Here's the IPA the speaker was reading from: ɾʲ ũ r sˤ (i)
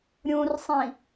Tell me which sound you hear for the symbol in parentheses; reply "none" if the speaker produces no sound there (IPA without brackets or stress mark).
ĩ